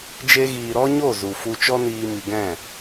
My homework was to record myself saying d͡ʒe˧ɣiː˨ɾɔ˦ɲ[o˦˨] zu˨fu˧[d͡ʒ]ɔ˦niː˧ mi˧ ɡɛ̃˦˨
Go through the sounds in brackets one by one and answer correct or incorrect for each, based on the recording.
correct, incorrect

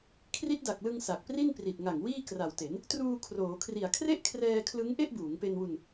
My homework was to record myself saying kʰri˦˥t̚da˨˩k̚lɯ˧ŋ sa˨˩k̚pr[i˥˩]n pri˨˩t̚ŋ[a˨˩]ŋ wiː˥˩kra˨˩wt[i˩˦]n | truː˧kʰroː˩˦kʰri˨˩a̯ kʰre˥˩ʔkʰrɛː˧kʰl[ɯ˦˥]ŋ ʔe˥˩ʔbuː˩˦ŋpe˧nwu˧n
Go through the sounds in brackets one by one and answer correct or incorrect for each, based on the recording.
correct, correct, incorrect, correct

